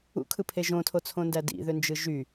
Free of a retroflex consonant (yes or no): yes